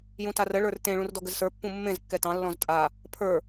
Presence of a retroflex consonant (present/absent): present